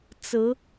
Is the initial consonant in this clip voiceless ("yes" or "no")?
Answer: yes